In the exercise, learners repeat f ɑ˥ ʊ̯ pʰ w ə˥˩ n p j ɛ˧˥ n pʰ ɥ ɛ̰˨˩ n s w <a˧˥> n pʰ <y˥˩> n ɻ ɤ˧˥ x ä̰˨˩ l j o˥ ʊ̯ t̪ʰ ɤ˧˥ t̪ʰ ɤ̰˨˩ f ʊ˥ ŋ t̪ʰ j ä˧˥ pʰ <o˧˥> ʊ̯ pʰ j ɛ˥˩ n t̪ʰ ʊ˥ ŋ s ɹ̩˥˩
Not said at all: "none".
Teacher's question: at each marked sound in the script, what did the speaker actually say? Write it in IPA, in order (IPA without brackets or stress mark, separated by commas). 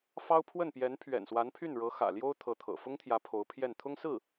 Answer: a˧˥, y˥˩, o˧˥